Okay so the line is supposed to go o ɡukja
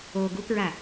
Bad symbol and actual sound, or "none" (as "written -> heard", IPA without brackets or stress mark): j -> ɹ